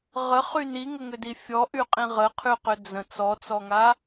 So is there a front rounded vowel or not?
yes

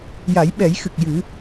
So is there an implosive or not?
yes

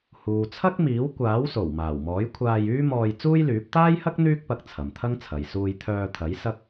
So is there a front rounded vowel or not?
yes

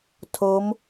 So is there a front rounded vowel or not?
no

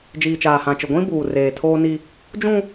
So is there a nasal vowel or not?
yes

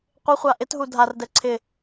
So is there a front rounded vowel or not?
no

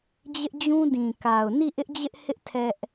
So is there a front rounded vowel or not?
no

